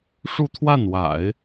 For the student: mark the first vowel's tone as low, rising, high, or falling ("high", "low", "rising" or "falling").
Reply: falling